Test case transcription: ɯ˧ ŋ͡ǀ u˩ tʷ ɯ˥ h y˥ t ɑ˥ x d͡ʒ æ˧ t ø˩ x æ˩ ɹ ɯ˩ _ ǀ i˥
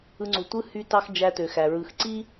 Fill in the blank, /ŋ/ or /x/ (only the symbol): x